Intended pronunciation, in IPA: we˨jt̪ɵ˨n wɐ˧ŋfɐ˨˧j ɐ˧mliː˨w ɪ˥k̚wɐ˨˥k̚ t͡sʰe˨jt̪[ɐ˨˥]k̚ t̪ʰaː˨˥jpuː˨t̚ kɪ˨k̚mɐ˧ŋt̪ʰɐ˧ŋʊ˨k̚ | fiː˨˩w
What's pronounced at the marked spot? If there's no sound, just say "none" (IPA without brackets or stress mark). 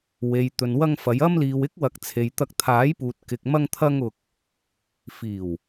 ɐ˧